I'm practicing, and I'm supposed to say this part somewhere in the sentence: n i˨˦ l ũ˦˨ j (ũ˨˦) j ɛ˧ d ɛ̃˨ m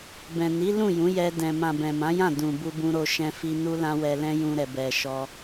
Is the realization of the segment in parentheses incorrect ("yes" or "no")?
no